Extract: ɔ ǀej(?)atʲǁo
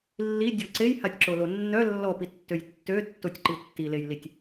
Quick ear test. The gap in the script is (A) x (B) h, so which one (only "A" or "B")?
B